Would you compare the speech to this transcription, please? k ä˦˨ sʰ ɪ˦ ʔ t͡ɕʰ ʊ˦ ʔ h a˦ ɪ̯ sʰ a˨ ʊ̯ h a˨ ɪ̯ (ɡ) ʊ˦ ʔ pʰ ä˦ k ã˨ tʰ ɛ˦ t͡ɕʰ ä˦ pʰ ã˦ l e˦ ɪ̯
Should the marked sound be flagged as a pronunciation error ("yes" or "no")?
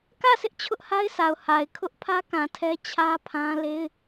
yes